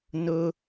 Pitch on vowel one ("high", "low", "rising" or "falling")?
high